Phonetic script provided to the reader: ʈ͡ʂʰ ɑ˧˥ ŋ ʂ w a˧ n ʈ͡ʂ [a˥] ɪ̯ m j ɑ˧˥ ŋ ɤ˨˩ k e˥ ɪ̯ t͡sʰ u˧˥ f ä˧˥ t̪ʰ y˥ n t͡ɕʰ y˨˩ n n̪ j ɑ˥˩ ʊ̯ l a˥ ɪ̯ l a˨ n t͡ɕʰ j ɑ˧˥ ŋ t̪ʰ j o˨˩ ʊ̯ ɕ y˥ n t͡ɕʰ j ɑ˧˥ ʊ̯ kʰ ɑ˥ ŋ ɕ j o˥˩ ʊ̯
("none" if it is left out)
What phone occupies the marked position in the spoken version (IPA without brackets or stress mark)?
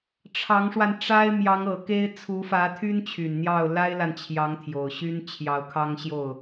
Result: a˥